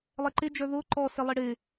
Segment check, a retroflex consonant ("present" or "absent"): present